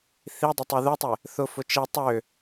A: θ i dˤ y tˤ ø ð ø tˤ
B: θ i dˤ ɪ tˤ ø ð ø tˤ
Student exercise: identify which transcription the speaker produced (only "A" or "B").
B